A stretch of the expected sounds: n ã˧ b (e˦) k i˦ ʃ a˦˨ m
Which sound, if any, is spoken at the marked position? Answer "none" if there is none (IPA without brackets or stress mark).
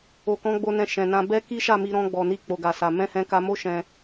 ɛ˦